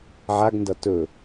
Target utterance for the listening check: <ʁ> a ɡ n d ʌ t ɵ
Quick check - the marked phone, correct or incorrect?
incorrect: ʕ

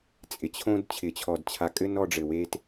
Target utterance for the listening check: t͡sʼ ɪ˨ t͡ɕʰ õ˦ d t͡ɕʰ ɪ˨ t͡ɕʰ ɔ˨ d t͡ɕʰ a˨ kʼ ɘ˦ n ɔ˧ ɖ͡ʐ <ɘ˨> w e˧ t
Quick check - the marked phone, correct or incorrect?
correct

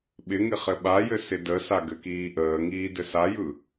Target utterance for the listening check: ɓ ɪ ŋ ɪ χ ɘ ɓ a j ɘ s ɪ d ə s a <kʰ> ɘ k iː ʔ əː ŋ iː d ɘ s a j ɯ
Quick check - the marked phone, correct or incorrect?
incorrect: ɡ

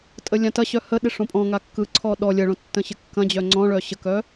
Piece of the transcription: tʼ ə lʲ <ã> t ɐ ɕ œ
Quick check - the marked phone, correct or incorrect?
correct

